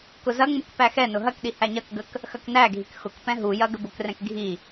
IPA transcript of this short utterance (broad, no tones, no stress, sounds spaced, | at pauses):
k ʊ z ɐ ŋ͡m u k p æ x ɛ n ʊ ɦ ɐ k ɗ i h æ ɲ ɐ k ɡ ə k | x ɐ k n æ ɡʱ i k x ʊ k p ɛ̃ ɦ u j ɐ ɡ ə b ʊ k r ɛ̃ k ɡʱ i